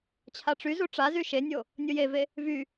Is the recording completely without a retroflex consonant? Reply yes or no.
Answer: no